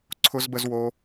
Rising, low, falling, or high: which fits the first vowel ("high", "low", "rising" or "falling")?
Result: high